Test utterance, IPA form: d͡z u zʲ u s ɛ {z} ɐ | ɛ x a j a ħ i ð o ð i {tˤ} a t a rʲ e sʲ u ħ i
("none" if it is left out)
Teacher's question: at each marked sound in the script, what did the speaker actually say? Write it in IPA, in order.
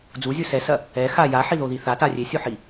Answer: s, θ

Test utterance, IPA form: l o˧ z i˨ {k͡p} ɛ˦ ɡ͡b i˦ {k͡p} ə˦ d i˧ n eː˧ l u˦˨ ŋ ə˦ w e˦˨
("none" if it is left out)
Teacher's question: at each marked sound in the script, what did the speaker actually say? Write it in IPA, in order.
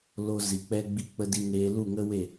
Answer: k͡p, k͡p

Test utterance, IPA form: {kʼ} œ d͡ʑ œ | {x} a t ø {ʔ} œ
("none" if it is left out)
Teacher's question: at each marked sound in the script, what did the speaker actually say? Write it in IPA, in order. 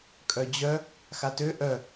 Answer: kʼ, x, ʔ

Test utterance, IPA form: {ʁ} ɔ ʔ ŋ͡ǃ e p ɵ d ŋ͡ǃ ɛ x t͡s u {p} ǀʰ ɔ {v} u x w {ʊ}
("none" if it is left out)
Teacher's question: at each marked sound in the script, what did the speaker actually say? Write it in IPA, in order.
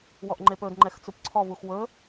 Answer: w, p, v, ɵ

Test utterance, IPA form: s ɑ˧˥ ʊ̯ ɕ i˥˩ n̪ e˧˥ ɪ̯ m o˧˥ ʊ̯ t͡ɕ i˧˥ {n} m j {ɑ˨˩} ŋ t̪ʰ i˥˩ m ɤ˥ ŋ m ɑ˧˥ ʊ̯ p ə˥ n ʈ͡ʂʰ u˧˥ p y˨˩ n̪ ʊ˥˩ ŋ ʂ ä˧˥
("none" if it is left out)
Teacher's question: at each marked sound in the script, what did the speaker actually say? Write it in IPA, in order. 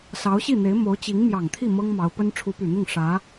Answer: ŋ, ɑ˨˩

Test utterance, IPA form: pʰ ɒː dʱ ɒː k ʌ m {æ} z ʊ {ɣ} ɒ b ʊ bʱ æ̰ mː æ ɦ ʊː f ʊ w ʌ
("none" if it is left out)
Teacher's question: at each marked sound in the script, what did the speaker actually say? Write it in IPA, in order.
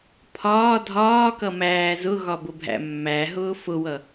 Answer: æː, ɣ

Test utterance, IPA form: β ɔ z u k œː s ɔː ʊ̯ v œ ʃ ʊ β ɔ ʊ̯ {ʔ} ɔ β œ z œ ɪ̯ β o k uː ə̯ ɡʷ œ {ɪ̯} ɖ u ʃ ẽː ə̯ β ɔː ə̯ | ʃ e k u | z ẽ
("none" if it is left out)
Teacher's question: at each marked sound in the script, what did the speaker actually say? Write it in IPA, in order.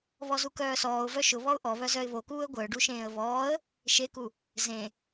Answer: ʔ, ə̯

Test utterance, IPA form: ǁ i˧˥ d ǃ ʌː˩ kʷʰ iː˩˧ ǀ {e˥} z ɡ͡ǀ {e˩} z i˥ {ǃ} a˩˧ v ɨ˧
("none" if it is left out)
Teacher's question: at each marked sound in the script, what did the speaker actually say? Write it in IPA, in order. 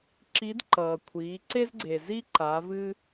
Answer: e˥, e˩, ǃ

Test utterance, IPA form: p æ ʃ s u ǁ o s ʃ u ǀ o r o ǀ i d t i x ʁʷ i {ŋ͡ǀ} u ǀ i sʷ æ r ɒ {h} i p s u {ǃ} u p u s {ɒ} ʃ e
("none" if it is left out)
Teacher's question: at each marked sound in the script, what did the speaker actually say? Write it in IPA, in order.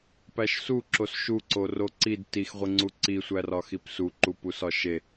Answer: ŋ͡ǀ, x, ǃ, ɒ

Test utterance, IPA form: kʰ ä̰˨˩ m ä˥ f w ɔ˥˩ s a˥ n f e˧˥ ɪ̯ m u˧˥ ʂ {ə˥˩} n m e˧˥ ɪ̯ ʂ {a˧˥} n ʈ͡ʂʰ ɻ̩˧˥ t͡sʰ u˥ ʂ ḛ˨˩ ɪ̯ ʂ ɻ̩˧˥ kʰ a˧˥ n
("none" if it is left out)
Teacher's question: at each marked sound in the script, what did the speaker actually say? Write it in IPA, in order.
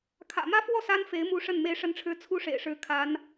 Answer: ə˥˩, ə˧˥

